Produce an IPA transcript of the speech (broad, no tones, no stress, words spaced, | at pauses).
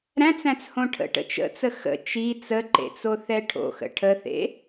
ɾæ̃t͡sæ̃t͡shõ ʈʰə̰ʈə̰ t͡ʃə̰t͡sə xə̰ t͡ʃi t͡səǃḛt͡soθɛ ʈʰo̰xə̰ ʈʰəθḛ